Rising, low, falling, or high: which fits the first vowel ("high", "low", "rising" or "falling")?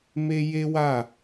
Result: high